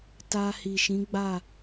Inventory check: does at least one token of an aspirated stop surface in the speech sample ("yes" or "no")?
no